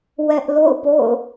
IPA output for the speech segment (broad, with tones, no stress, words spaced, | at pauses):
wɛ˦ʔ lo̰˦˨ʊ̯po̰˦˨ʊ̯